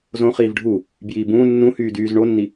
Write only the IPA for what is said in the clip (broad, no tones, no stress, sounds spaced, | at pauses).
z õ χ iː v ɖʱ u | b j iː b ũː nː ũ h yː d yː z ɳ o nː i